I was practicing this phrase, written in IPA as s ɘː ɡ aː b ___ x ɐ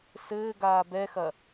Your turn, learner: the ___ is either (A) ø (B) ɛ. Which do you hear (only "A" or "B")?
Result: B